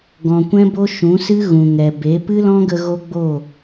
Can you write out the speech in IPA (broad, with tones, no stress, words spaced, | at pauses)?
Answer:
ɡɔ̃˨kʷɛ̃˦bo˦ ʃũ˨˦sɨ˦ɣũ˨ ŋɛ˨be˨˦ pɨ˦lɔ̃˦ɡə˧ ɣo˦ɡ͡bo˦˨